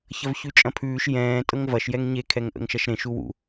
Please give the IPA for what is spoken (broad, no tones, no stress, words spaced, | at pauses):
çɐvçʉt͡ʃʼɐ̃pʰʉːʃ jɛ̃ː tʼɤŋvɐʃ jɛŋɲe kʰɛŋʔə̰ŋʃɐʃɾẽ ʃuwṵ